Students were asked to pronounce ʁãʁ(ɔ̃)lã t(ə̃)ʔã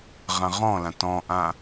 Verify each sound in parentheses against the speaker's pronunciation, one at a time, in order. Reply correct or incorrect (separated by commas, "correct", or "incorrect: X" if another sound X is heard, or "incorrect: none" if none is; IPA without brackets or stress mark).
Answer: correct, incorrect: ɔ̃